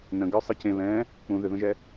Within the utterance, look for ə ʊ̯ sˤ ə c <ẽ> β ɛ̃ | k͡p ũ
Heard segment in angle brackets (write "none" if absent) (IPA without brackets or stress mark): ẽ